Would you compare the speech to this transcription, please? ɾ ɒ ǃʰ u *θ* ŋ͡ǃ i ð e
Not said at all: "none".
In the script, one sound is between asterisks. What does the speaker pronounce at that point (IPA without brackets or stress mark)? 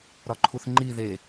θ